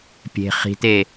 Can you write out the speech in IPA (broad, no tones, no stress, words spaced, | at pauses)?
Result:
pʲe̤ χi̤te